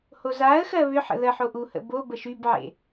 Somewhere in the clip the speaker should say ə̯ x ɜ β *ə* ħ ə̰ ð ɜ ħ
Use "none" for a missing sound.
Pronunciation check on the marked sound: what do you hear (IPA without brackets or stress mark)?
ʏ